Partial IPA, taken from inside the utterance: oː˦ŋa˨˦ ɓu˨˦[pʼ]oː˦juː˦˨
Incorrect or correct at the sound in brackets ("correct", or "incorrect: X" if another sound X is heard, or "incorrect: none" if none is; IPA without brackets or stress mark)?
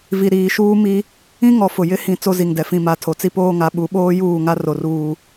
incorrect: ɓ